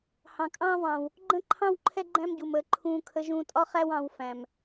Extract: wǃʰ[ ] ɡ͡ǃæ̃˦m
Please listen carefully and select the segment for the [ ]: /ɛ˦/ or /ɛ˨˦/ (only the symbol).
ɛ˦